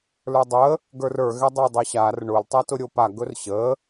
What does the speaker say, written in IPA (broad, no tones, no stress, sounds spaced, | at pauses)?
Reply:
l ə˞ dˤ ə | ɡ ə˞ r ə˞ ɣ ɛ dˤ o dˤ œ ɕ a r ɳ ʊ l tˤ ɛ t ʊ ɾʲ o p a ɡ ɵ r ɕ ə